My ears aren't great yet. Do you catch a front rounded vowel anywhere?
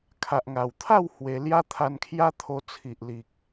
no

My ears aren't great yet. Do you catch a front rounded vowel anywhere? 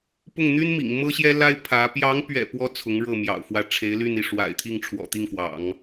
yes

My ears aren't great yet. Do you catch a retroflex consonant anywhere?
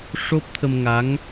yes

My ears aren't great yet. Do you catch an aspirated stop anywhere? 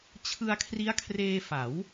yes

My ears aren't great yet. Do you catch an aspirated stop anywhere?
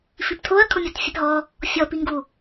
yes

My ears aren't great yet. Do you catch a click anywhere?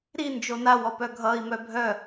no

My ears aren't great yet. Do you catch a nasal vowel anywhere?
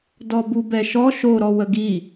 no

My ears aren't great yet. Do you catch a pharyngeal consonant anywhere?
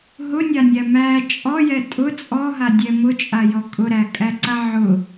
yes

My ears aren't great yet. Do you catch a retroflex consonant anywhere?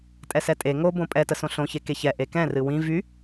no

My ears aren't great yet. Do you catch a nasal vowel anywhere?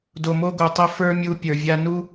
no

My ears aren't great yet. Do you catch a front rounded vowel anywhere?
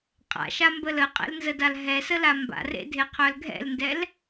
yes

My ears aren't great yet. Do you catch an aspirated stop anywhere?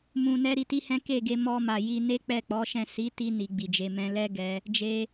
no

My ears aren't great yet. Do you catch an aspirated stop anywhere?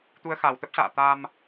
no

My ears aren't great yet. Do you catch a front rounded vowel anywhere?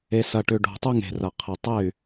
yes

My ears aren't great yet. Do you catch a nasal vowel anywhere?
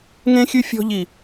yes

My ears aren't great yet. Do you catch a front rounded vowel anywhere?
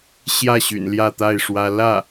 yes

